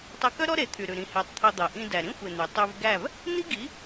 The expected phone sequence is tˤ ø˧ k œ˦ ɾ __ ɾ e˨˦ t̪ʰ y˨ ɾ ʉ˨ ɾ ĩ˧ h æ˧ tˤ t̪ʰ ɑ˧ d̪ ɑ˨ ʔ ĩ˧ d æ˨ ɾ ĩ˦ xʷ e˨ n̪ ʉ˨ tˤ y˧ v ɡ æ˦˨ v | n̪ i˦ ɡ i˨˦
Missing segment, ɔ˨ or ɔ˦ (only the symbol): ɔ˦